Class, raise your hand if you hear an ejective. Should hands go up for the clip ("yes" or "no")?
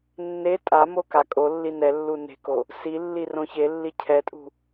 yes